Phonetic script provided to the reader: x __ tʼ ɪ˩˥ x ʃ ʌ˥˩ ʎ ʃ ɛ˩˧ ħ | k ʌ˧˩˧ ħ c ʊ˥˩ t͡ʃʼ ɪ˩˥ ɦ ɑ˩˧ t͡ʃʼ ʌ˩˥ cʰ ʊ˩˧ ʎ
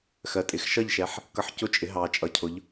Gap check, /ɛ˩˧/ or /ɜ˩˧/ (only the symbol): ɜ˩˧